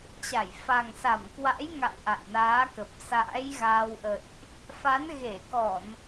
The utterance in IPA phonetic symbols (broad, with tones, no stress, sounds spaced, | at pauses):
t͡ɕ a˧˩ j f a˨˩ ŋ s a˧˩ m k w a̰˧˥ j ŋ a̰˧˨ w ʔ a̰˧˨ j n aː˨˦ k ə˨˩ p̚ s a̰ː˧˥ j ɣ aː˧ w ʔ ə̰˧˨ j ʔ | f a˨˦ n ɣ e˧˩ k ɔ˧˩˨ n